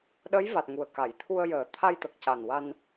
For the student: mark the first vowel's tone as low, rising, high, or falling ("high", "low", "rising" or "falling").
rising